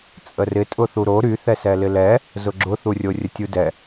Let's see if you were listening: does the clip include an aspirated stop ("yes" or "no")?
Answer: no